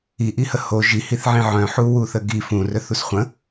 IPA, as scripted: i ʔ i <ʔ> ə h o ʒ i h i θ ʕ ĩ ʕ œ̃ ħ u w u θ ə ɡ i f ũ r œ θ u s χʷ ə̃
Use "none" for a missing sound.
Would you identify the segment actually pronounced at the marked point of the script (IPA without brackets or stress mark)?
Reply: h